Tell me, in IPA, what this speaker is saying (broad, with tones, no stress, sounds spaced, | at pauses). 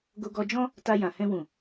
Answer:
ɡ o˧ ɡ ɔ˧ d͡ʒ ɔ̃˦ | t a˧ j ã˨ h ɛ̃˧ w ũ˨